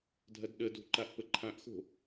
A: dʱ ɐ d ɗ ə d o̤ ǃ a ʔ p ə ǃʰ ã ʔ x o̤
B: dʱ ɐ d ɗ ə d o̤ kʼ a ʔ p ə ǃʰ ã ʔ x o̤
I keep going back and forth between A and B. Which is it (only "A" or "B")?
A